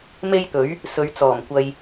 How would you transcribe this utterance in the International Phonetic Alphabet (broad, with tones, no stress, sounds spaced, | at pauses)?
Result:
m e˥ j t̪ ɵ˨˥ ɥ | s ɵ˨˧ ɥ t͡s ɔː˨˩ m kʷ ɐ˧ j